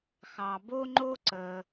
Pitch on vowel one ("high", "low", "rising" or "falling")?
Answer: low